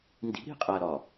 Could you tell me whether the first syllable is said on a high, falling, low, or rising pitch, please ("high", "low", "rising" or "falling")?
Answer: rising